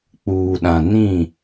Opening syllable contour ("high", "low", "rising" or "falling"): low